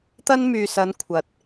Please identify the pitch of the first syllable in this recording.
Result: high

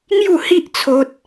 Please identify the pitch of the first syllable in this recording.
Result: falling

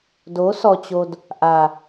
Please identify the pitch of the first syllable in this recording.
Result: rising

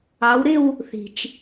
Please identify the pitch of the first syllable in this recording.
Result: rising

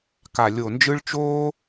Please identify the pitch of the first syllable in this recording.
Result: low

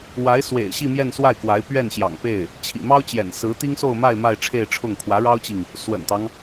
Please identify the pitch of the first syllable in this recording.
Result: rising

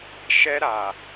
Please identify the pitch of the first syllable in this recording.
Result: high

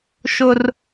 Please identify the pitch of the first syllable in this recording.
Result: high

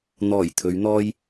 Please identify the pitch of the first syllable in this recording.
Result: low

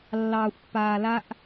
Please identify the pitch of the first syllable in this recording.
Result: low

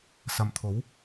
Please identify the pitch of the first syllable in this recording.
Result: low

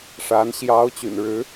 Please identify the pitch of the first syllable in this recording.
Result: rising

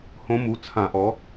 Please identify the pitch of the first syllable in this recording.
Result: rising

